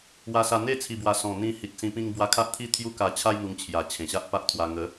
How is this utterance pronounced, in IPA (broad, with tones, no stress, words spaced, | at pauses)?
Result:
wa˧sa˧ n̪e˦ t͡sʰi˨˩bwa˨˩ sɔ̃˨˩ n̪ĩ˧hi˨t̚sĩ˧ pĩ˧ŋbwa˧ kʰa˦ʔt̪ʰi˥˧ t̪ʰju˦ka˧t͡ɕʰa˦j n̪u˧ŋt͡ɕʰja˨˩t͡ɕʰẽ˨˩ɕa˦ʔ pa˦ʔt̪ʰwa˧ ŋə˨˦